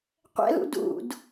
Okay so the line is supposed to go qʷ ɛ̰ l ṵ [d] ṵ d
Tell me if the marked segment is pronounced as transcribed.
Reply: yes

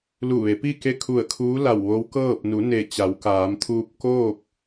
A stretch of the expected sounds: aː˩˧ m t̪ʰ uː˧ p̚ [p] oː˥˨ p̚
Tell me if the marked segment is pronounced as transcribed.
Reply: no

